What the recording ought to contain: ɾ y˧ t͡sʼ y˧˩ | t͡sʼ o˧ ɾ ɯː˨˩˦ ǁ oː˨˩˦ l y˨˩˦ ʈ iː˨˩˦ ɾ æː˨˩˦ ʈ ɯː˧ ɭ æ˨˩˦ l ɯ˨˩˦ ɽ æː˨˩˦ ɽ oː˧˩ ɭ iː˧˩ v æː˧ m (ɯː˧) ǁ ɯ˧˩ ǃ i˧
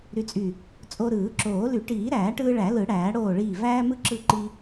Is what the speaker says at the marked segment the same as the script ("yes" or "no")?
no